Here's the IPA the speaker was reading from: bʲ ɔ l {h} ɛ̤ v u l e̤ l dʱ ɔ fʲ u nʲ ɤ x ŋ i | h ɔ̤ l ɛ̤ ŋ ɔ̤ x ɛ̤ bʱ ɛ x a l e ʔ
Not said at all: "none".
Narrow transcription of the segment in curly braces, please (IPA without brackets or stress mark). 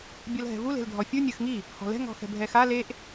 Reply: ɦ